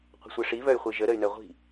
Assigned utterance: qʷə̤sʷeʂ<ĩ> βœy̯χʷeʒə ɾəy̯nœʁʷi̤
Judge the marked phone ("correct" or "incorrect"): incorrect